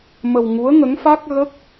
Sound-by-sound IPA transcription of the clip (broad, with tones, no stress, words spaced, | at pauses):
mə˧w ŋu˧˥ə̯ŋə˧˥ŋfa˦˥k̚ɣə˦˥k̚